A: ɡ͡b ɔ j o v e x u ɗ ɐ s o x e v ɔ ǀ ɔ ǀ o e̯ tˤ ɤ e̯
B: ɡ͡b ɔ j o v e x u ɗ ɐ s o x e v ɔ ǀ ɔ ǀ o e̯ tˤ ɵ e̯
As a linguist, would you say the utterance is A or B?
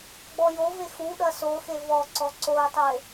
B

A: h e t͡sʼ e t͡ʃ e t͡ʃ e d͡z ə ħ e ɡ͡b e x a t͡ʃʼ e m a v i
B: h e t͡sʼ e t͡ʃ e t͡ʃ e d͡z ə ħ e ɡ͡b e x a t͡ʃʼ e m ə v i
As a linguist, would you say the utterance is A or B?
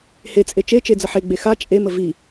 B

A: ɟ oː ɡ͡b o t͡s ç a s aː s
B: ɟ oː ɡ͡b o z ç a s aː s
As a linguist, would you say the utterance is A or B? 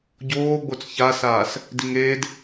A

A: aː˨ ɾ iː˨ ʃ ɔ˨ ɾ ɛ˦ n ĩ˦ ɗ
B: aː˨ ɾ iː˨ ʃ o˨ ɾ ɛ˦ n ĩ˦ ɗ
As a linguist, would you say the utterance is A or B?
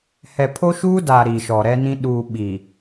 A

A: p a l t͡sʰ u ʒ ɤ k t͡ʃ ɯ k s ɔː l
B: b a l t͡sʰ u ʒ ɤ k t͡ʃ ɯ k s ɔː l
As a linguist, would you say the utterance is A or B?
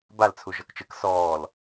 B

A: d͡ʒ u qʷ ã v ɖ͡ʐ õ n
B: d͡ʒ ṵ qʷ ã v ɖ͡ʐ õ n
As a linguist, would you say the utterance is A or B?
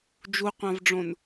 A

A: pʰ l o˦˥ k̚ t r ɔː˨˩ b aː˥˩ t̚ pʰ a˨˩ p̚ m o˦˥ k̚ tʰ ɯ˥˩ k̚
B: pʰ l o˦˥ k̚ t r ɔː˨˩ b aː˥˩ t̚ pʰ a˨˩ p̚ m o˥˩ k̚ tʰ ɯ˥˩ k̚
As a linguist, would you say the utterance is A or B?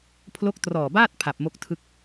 B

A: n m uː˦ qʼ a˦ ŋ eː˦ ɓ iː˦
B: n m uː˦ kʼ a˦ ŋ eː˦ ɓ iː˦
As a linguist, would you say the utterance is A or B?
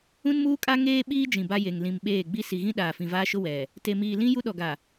B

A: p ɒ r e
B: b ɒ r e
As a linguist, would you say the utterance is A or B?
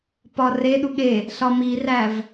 A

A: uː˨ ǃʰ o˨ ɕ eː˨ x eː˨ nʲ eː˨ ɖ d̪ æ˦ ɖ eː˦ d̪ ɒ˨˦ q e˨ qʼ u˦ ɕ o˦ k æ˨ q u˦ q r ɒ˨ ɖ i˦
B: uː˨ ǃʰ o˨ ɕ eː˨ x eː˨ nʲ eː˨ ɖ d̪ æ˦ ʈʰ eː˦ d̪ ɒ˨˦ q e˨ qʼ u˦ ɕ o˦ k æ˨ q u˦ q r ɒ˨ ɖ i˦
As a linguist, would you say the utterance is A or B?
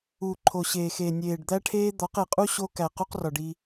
B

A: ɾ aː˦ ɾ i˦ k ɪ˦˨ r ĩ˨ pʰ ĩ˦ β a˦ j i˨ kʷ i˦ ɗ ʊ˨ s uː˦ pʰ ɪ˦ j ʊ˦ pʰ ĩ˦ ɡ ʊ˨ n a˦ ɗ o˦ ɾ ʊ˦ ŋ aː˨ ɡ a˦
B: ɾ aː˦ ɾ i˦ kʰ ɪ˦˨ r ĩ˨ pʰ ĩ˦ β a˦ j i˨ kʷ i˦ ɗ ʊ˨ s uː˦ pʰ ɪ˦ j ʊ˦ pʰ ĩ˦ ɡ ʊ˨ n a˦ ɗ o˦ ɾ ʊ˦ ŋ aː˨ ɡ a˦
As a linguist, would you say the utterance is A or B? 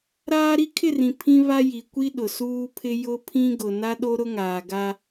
B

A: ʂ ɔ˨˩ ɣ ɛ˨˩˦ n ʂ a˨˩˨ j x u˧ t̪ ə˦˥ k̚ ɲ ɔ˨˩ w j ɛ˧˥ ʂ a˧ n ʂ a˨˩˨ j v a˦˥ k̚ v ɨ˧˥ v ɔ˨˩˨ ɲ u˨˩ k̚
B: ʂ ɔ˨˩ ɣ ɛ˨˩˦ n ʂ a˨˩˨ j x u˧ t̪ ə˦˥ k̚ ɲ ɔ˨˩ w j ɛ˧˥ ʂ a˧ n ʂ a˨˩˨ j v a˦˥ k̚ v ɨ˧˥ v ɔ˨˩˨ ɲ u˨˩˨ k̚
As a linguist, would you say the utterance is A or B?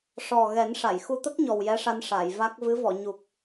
A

